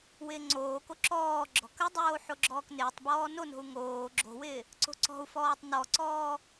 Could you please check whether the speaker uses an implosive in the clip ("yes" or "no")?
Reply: no